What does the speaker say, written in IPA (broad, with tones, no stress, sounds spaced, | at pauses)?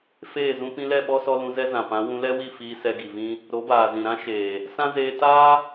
f eː˦˨ z ũ˦ p ĩ˧ l ɛ˦˨ ɓ ɔ˦ s ɔ˧ l ũ˧ z ɛ˦ z ã˨ p ã˨˦ w ũ˧ l ɛ˦ w i˦˨ f iː˧ s ɛ˧ ɡ i˨ v ĩ˦ | ɾ o˨˦ b aː˨ z ĩ˨ ɾ ã˦ ʃ eː˨ | s ã˦ z eː˧ t aː˦